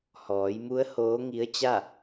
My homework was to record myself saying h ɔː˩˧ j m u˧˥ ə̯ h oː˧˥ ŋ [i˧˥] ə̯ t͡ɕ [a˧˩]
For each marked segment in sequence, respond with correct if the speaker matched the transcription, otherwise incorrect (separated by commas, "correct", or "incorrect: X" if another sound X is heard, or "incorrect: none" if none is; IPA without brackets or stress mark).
correct, incorrect: a˥˨